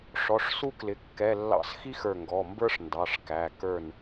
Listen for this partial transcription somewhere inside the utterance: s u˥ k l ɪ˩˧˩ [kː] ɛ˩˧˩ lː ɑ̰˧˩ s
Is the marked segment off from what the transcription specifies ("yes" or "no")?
no